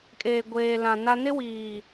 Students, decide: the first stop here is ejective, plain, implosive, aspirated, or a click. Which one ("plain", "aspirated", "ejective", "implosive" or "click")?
ejective